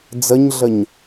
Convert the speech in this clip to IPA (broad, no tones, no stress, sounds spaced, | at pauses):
d͡z ə ɲ ɮ ə ɲ